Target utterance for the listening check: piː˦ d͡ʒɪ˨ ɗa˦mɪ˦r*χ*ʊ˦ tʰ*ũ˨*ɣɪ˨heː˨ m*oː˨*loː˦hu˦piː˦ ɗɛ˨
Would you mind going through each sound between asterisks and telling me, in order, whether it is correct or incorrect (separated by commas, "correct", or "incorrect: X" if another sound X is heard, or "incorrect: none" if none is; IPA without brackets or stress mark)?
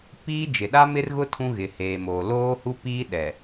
incorrect: ɣ, incorrect: ũ˦, correct